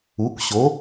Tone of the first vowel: rising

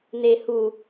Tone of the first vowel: low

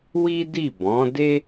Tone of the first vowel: high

